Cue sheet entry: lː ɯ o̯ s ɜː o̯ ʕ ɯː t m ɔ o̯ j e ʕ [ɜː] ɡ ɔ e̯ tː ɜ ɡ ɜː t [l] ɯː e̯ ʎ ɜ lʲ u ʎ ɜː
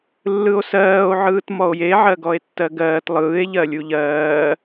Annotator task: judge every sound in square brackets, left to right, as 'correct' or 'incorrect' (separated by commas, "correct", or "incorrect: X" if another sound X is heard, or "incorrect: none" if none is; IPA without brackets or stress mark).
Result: incorrect: ɜ, incorrect: lˠ